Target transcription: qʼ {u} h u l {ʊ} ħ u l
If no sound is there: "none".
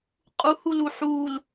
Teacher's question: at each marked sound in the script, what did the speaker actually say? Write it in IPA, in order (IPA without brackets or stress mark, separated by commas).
u, u